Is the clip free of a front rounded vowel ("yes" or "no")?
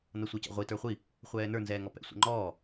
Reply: yes